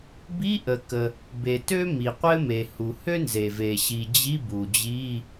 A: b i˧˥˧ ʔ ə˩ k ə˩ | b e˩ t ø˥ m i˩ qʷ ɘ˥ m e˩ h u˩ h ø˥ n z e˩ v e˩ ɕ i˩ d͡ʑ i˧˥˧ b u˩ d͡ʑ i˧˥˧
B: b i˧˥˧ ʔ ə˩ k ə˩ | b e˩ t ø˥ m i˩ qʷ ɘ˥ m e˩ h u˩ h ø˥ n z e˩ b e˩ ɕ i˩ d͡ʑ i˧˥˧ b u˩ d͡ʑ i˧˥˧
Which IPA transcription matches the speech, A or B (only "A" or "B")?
A